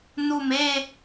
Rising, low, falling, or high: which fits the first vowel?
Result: low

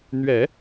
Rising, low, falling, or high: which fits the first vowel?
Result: low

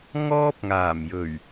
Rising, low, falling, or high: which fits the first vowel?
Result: high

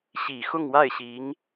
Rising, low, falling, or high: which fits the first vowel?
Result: low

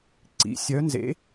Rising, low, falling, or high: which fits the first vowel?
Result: rising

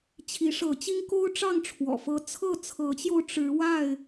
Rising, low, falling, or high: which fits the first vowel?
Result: rising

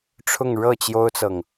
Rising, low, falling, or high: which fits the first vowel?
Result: falling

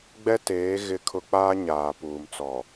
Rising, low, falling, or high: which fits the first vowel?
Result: high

